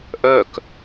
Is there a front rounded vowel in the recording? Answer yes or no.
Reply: yes